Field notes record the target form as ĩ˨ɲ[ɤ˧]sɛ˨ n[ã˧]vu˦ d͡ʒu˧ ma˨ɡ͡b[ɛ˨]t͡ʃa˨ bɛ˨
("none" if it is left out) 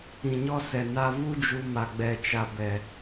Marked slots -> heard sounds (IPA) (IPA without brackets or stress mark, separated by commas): ɔ˧, a˧, ɛ˨